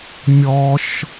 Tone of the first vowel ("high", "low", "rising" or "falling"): high